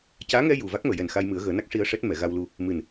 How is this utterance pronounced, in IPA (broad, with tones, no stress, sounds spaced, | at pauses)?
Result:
c aː˧˥ ŋ ɛ˧ j u˨˩ v a˦˥ k̚ m əː˨˩˨ j ɛ˨˩ n x a˧ j m ɨ˨˩˦ ə̯ ɣ əː˨˩˦ n a˦˥ k̚ ʂ i˧ ə̯ ʂ ɛ˦˥ t̚ m ɛ˨˩˨ ɣ a˧ w l u˧ | m ɨ˨˩ n